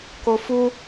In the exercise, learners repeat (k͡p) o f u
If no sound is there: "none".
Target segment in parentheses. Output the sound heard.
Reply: k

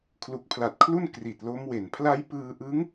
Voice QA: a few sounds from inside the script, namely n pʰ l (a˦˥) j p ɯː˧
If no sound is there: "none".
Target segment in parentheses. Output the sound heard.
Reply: a˦˥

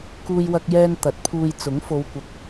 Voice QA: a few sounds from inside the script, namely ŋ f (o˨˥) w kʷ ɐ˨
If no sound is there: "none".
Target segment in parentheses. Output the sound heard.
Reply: o˨˧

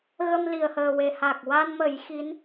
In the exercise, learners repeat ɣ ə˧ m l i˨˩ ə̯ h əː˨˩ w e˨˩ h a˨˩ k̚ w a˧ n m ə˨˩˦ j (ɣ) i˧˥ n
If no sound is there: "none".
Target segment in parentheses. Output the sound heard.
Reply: x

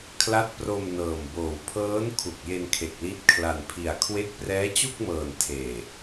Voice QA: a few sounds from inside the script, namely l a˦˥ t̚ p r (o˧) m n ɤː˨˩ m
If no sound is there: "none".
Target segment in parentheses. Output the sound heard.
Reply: o˧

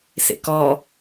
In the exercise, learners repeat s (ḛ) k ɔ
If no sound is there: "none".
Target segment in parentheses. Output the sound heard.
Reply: ḛ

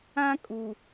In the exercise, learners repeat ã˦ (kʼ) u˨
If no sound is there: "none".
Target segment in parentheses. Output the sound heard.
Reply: kʼ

